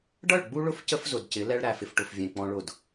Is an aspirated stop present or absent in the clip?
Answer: absent